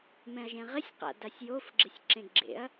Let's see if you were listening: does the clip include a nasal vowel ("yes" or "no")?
yes